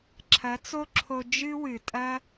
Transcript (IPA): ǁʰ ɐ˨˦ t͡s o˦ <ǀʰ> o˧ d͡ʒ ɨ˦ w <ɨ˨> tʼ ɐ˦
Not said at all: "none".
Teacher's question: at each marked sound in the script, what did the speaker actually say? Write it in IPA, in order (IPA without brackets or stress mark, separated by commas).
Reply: ǁʰ, ɨ˨